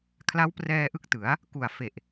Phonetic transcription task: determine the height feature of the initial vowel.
low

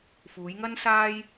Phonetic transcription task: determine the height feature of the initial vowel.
high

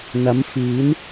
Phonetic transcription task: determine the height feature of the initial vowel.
low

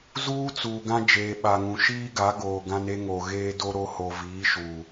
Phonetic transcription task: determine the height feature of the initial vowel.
high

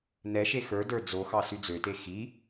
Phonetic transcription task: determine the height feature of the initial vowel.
mid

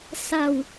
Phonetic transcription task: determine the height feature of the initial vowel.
low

